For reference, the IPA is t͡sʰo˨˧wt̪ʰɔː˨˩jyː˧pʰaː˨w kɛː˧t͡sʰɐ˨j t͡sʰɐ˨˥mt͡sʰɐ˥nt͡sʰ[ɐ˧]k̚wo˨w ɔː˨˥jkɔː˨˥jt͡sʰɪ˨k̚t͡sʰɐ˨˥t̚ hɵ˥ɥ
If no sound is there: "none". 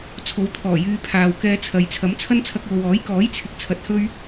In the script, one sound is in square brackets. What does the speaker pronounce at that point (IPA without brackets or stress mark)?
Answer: ɐ˧